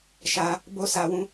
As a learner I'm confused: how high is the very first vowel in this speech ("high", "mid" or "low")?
low